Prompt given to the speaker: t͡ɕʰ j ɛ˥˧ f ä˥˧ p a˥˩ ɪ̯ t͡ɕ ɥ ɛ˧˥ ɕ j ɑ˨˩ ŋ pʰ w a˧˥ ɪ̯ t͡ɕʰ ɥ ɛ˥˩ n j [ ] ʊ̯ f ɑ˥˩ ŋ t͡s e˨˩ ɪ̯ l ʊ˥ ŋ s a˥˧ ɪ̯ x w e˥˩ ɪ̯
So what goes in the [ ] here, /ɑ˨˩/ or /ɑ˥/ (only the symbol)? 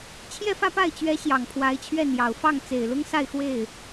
ɑ˨˩